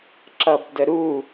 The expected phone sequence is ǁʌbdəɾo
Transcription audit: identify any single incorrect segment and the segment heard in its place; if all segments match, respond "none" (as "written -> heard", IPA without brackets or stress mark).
o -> u